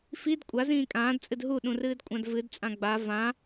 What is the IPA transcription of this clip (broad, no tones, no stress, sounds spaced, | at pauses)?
f i d kʷʼ a z ĩː kʼ ãː d t͡sʼ ɨ d ɦ u ɗ ũ r ɨː d kʷʼ ã d v ɨ d t͡sʼ ã ɡ͡b a v ã